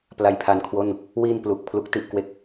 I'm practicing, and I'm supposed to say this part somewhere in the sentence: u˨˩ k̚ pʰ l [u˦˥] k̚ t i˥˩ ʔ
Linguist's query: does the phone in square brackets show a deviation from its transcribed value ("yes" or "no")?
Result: no